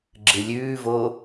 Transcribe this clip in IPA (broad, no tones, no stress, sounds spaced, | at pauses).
ɡ͡ǁ ɨ lʲ ʉː v o